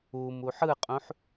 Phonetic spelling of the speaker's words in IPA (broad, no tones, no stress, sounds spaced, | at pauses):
u m u ħ ɯ qʼ ũ ħ